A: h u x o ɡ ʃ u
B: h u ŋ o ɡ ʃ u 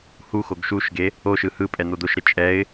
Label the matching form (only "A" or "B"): A